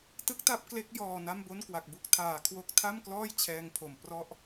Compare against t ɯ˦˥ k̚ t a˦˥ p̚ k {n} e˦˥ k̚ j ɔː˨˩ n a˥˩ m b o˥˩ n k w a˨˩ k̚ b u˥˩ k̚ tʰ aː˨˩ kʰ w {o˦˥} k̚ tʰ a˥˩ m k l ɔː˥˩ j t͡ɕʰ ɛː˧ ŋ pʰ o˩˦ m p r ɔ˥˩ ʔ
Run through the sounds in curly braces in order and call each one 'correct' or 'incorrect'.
incorrect: l, correct

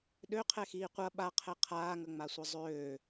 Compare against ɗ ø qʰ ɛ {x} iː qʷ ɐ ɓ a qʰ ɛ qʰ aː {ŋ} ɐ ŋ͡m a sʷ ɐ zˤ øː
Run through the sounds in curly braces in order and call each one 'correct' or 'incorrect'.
correct, correct

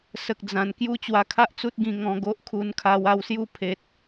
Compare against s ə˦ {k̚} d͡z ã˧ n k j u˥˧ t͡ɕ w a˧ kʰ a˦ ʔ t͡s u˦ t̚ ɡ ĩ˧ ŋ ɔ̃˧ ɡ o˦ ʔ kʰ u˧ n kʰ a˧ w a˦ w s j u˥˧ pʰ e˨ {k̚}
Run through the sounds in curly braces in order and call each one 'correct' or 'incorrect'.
correct, incorrect: t̚

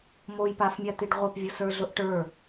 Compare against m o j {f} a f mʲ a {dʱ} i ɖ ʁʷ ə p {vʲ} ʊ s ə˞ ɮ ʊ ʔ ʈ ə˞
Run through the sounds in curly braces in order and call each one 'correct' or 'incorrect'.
incorrect: p, incorrect: t̪, correct

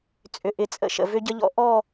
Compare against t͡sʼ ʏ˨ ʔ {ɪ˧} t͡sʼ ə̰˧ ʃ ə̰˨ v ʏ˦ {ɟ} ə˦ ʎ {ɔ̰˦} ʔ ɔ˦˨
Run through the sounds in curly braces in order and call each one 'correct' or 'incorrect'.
incorrect: ɪ˨˦, correct, correct

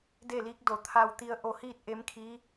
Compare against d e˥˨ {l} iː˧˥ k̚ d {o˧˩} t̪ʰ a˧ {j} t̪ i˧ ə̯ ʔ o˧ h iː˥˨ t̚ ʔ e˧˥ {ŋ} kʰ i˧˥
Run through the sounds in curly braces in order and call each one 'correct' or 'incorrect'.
correct, correct, incorrect: w, incorrect: m

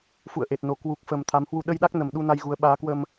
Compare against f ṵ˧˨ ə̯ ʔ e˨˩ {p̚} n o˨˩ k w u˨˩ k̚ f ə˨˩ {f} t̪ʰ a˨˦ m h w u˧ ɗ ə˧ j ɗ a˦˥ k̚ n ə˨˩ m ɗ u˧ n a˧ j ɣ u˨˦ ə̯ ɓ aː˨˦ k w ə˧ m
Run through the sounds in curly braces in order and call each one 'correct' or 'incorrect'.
incorrect: t̚, incorrect: m

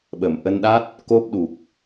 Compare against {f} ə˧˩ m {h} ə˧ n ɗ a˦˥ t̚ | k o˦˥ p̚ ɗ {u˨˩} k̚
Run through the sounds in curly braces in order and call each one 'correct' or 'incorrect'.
incorrect: ɓ, incorrect: ʔ, correct

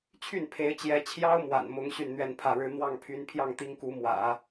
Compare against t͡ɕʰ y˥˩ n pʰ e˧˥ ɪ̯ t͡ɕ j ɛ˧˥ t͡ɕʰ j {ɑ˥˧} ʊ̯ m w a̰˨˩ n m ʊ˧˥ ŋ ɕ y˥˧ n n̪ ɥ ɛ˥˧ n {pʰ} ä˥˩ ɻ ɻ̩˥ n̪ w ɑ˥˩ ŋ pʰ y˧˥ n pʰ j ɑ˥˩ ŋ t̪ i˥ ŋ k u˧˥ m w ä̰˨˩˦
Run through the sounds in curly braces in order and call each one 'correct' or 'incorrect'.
incorrect: ɑ˥, correct

